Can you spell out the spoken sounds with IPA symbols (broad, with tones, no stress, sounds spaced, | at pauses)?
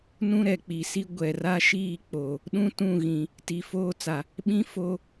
n ũ˦ ɾ ɛ˨ k͡p i˨ s i˦ ɡʷ ɛ˨ r a˦ ʃ iː˦˨ k͡p o˨ | ɗ ũ˦ t ũ˦˨ ɣ ĩ˨ | t i˨ f oː˦ t͡s a˨ | ɓ ĩ˦ f o˦